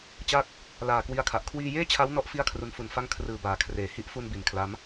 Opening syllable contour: falling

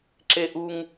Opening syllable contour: high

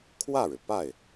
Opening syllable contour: falling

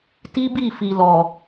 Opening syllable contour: high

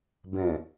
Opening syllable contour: low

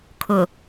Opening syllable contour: low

